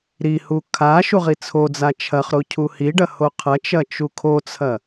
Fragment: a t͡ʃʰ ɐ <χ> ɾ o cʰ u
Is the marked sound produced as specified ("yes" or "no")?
yes